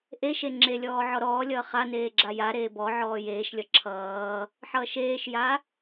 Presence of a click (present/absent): present